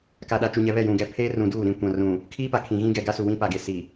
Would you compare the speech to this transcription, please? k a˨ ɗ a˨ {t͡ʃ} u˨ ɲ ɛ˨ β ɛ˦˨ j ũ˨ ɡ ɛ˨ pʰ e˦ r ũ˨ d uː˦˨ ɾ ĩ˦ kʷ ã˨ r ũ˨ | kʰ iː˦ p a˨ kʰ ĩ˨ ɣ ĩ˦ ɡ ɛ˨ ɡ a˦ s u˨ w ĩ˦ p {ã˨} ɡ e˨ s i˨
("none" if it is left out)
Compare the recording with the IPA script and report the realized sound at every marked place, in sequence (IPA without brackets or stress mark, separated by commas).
t͡ʃ, a˨